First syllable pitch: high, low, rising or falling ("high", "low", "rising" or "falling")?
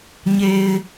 low